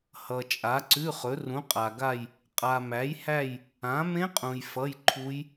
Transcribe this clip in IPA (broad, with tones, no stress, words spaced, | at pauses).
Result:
hʌ˨t͡ʃʼa˨˥ǀʉ˧˥˧χɵ˨˥ rũ˨˥qʼa˨ɡa˥˧j | qʼa˨mæ˨˥jhæ˥˧j | ã˨˥ mẽ˦˥qʼũ˨j fʌ˧˥˧jǃʰu˦˥j